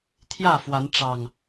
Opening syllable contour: falling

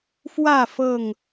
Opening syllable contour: falling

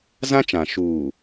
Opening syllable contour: high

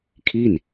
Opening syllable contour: falling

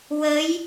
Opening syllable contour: rising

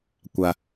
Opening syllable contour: low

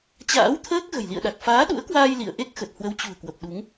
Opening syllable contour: rising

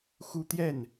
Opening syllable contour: high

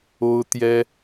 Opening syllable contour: high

